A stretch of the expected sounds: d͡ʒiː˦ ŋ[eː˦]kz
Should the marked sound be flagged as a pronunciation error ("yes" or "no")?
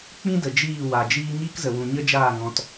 yes